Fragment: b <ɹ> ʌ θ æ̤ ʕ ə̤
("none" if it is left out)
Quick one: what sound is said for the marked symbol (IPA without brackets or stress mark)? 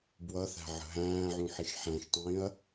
w